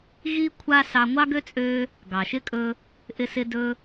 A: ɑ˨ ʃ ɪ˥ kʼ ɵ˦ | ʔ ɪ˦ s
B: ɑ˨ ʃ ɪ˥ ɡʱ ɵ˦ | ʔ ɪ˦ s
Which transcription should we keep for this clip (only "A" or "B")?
A